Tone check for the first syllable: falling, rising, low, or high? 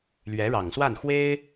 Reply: rising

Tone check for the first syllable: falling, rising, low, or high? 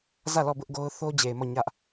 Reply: falling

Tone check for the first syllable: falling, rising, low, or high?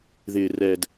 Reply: low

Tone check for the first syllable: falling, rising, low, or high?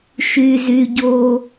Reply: high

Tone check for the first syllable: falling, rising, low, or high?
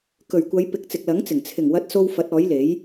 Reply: low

